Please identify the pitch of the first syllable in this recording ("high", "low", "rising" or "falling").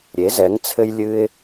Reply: rising